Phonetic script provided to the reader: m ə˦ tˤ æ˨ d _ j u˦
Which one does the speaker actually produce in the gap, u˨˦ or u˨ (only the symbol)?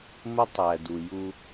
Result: u˨